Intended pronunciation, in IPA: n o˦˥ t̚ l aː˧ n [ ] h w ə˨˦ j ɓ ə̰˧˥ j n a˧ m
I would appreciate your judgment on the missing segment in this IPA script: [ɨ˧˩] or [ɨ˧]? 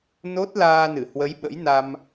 ɨ˧˩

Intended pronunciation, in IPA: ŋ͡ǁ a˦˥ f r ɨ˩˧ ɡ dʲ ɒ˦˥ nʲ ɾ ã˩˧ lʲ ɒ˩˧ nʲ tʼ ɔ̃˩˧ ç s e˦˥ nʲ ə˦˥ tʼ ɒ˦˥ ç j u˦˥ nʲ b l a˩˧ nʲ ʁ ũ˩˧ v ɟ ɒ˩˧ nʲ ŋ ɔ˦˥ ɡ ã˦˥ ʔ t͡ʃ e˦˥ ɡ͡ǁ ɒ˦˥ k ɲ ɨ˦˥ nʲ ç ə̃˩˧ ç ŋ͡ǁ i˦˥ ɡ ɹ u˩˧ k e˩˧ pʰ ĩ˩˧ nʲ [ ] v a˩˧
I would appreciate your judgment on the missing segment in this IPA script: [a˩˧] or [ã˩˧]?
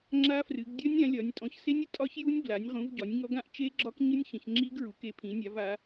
a˩˧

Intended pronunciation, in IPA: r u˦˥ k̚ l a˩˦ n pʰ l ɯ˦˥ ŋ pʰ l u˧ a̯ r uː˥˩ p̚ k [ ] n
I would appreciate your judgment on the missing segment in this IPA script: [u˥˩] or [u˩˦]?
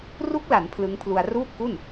u˥˩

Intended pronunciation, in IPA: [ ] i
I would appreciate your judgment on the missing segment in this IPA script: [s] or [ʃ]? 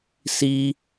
s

